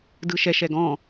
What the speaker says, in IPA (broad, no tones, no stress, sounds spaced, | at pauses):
d ɯ ʃ ɛ ʃ ɛ ɡ ɔ̃